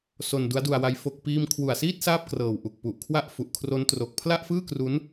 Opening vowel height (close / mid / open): mid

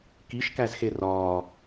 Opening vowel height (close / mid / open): close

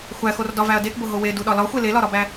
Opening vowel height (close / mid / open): open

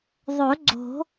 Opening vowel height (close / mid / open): mid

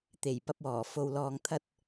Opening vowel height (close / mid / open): mid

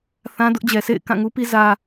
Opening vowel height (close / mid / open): open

